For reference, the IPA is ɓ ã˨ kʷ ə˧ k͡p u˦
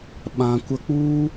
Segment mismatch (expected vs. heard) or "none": none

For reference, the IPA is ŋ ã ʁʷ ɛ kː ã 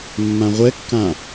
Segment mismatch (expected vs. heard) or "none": ŋ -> mː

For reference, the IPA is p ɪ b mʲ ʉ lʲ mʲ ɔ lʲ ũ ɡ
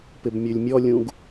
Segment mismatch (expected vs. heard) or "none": none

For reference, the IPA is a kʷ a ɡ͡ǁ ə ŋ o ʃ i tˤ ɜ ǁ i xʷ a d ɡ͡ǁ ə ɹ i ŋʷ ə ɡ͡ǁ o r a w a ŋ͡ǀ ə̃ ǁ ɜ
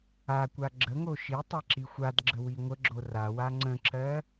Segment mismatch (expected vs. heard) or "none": ɹ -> w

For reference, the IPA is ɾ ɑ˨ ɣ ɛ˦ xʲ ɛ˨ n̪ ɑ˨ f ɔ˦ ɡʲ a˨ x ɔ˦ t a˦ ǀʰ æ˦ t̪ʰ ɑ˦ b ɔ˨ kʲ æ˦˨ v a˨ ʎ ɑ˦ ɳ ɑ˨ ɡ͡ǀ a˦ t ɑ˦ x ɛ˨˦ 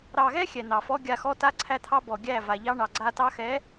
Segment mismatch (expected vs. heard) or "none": kʲ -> ɡʲ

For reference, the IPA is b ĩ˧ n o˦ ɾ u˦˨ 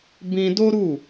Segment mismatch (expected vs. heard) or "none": n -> d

